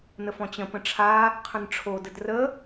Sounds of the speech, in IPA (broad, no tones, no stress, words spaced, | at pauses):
nəfɔ̃t͡ɕə̃ pə̃ʈ͡ʂʰa | qʰə̃nʈ͡ʂʰo dədrə